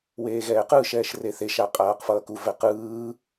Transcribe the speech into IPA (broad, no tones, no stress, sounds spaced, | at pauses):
w eː ɣ ɛː q ɯ ʃ ɛː ʃ r e θ e ʃ a qʼ aː q f ʌː k u v ɛ q ɯː